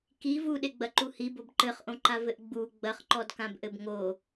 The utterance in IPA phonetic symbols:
k i v u ɗ e ɡ͡b ɐ ǃ u h i b o b ǃ ɘ χ ʔ õ ǃ a v ɘ ʔ ɡ͡b u ɡ͡b ɐ χ ǃ ɔ d k ã b ʔ ɘ b ŋ o

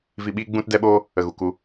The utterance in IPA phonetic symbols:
v i˧ ɓ i˦ ɡ͡b ũ˧ t d ɛ˦ ɓ oː˦ | ə˧ ɣ u˨ k u˦

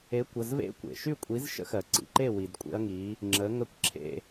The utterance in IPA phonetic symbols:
e˨˥ kʷ ə˩˧˩ z v ḛ˦˥ kʷ ḛ˩ ʃ y˥˨ kʷʼ i˨˥ z ʃ ə̰˦˥ x ɜ˩ ǀ ḭ˩˧˩ ǃ e˥˨ w i˩ d kʷʼ ḛ˦˥ ɐ̯ ŋ i˨˥ | ŋ͡ǁ ə˨˥ ŋ ɜ˥˨ kʷ ǁʰ ḛ˥˨

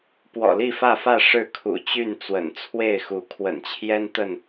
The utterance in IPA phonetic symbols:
p w ɔ̰˨˩ l i˥˨ f ä˥˨ f ä˥˨ ʂ ɻ̩˥˨ kʰ ṵ˨˩ t͡ɕ y˥˨ n t͡s w ə̰˨˩ n t͡sʰ w e˥˨ ɪ̯ x u˨˦ kʰ w ə̰˨˩ n t͡ɕʰ j ɛ˦ n t̪ ə˥˨ n

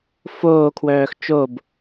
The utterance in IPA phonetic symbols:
f oː kʰ w œː x t͡ʃ o b

